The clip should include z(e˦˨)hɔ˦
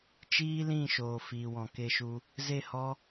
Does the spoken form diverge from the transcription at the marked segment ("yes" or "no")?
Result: no